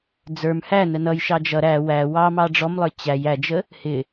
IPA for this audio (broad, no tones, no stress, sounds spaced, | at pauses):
d͡z ə˞ m h æ n ə n ʌ j ʃ ɑ d͡ʒ ʌ ɾ æ w æ w ɑ m ɑ ɖ͡ʐ ɔ m lˠ ə˞ t͡ɕ æ j æ d͡ʒ ə | h ɪ